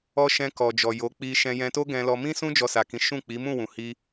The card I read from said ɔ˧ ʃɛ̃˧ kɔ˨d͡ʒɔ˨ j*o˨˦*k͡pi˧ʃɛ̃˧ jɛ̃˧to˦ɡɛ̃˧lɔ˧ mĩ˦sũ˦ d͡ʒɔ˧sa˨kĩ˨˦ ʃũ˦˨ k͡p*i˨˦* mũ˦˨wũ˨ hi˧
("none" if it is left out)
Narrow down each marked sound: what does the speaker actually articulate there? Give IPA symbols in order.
o˨˦, i˨˦

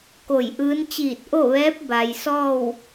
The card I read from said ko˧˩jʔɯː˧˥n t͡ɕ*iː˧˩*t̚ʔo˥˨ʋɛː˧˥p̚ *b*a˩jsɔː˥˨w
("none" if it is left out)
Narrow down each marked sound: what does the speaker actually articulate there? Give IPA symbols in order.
iː˧˩, b

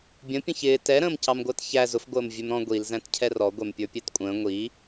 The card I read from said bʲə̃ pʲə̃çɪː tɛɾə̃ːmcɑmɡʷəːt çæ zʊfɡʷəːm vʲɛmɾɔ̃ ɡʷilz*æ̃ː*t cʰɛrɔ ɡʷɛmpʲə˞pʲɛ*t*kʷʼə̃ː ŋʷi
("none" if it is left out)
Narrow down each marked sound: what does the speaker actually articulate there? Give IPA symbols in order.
æ̃, t

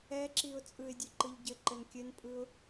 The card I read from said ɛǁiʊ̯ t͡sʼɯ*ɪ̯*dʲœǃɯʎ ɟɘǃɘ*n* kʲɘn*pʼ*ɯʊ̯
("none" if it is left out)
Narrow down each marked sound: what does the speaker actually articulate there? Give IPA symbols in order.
ɪ̯, n, pʼ

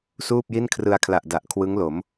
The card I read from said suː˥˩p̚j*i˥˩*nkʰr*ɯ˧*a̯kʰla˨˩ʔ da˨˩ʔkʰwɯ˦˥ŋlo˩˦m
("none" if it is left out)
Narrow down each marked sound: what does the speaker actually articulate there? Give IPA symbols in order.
i˥˩, ɯ˧

